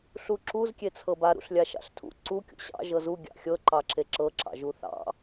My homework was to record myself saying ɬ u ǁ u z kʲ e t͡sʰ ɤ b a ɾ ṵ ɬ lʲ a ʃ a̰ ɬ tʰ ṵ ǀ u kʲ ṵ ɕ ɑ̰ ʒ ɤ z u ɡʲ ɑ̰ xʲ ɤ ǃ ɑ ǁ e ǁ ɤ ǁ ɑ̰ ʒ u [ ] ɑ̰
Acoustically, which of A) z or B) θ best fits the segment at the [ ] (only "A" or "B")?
B